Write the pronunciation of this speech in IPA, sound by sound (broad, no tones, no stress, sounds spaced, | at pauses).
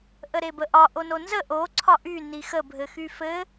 ʔ ə ɾ e b ə ʔ ɒ ʔ o n o n z ə ʔ o ǀʰ ɒ ʔ y n i x ə bʱ ɘ x y f ɘ